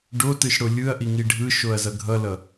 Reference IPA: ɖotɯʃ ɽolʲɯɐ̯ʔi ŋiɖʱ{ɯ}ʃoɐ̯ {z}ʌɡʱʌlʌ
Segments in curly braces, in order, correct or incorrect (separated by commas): correct, correct